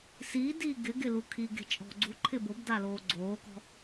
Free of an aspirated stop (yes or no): no